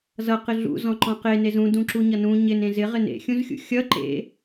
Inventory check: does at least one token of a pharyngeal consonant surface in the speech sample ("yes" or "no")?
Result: no